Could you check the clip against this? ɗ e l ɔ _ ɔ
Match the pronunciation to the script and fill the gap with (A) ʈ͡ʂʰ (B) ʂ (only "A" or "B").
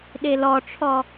A